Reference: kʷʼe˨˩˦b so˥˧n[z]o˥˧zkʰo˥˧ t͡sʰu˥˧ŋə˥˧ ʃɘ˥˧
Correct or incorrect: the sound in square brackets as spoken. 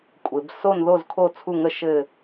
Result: incorrect: ð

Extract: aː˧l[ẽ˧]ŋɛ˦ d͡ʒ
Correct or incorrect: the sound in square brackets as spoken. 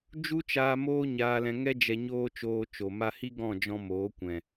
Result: incorrect: ɛ̃˧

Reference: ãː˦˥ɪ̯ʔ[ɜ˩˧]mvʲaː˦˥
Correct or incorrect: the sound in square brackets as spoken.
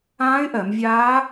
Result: correct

